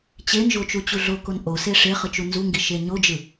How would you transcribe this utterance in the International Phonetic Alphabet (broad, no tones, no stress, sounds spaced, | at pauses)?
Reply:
t͡ɕ e n ʒ o t͡ʃ u t͡ɕ u ɮ o k o n ʔ o s e ʂ e χ ɯ t͡ʃ u n z u ŋ ɡ i ʃ e ɲ o d͡ʒ ɯ